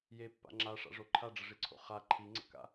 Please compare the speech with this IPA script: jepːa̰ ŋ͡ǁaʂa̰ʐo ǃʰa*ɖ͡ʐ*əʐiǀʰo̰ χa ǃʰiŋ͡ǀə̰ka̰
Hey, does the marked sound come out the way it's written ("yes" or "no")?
yes